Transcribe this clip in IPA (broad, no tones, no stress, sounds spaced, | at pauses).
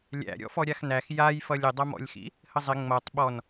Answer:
lʲ æ̰ ɾʲ ɔ̰ f ɔ ɾʲ a x n æ x j a j f ʌ lʲ ɪ dˤ ʌ m ɔ̰ lʲ x ḭ | h ə zˤ ɪ ŋ͡m ʌ tˤ ɓ ɔ n